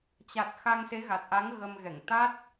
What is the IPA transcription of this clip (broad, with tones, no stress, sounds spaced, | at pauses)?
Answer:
t͡ɕ a˨˩ t̚ x a˧ ŋ s e˨˦ ɣ a˨˩ t̚ ʔ a˨˦ ŋ ɣ ə˧ m ɣ ɛ˧˩ ŋ t̪ a˦˥ t̚